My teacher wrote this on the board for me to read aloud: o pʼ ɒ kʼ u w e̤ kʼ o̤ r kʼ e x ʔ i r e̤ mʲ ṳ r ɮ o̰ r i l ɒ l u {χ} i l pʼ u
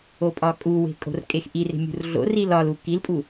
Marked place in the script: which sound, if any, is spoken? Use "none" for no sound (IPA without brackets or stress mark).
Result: k